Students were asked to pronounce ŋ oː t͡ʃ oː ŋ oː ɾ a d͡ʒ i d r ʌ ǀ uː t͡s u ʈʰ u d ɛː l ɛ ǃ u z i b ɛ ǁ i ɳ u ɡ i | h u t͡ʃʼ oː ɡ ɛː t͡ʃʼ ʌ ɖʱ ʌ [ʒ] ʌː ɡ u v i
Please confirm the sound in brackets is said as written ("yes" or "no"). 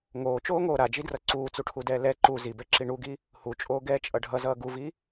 no